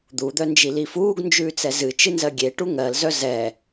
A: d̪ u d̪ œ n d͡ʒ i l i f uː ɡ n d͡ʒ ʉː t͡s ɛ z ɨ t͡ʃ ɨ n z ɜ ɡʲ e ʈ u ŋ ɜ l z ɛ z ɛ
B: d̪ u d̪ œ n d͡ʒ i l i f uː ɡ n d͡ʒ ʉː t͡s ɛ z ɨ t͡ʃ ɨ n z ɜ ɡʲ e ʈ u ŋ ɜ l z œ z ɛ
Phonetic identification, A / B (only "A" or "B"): B